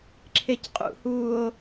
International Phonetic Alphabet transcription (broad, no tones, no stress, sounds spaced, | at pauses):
ǁʰ e c qʼ ṵ h uː o̯